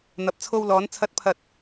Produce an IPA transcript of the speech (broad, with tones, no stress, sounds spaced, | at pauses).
n̪ ɐ˨˥ p̚ t͡sʰ o˧ w l ɔː˨˧ n t͡sʰ ɐ˨˥ t̚ pʰ ɐ˨ t̚